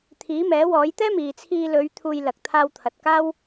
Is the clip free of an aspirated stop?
no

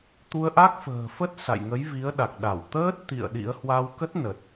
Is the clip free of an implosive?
no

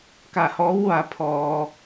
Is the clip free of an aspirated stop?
no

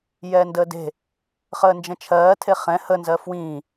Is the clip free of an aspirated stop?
no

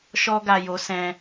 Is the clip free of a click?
yes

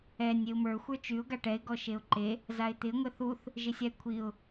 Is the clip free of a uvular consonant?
yes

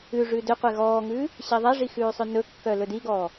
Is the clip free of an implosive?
yes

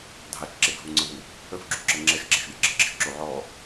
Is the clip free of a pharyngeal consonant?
no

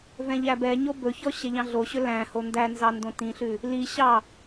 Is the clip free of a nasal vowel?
no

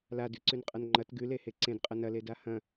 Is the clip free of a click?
no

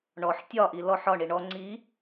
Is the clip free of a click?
no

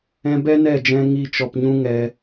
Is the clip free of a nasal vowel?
no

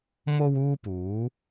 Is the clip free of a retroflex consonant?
yes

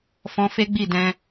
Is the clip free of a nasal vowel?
no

